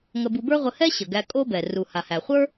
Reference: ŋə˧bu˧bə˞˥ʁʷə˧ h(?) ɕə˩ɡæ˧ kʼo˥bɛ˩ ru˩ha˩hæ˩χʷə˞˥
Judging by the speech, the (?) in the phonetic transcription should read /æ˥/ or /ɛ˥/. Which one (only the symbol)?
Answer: ɛ˥